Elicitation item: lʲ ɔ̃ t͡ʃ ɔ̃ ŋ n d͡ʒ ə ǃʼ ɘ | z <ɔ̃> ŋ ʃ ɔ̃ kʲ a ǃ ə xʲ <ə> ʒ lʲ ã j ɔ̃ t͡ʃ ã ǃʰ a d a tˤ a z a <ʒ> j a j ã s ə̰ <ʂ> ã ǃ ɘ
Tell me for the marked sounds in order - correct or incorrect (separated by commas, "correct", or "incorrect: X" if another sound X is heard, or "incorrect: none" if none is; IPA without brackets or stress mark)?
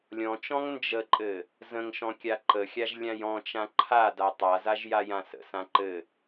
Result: incorrect: ə̃, incorrect: a, correct, incorrect: s